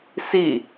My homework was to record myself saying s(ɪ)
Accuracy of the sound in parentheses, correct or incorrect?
incorrect: i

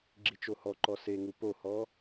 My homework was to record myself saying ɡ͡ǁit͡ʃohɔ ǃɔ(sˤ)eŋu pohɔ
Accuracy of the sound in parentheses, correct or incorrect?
incorrect: s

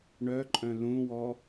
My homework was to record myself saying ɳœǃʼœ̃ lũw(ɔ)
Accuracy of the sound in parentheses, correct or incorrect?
correct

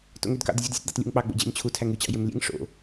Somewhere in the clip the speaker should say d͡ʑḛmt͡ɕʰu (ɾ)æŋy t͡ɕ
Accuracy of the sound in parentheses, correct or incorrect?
incorrect: tʰ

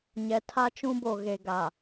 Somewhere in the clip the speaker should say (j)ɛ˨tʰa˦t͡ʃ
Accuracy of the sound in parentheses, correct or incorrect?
incorrect: ɲ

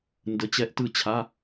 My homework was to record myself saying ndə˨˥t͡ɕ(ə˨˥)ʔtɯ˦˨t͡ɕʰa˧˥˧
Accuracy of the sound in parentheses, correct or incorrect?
incorrect: ɛ˨˥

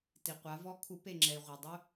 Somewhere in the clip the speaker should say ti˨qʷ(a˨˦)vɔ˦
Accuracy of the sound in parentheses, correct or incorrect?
correct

